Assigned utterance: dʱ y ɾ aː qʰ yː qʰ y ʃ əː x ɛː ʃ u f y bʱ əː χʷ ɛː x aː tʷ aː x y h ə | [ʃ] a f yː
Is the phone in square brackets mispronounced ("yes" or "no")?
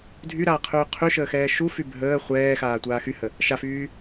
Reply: no